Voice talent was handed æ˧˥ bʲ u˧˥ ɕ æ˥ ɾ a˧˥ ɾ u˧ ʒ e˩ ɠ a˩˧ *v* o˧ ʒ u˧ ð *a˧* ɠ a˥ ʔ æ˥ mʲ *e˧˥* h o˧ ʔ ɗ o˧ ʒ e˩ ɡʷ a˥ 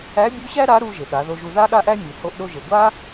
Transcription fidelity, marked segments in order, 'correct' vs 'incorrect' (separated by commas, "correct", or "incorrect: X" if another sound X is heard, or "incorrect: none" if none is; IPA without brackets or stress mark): incorrect: ð, incorrect: a˥, incorrect: e˩